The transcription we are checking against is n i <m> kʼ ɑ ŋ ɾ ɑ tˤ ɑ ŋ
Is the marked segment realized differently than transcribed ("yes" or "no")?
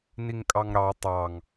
yes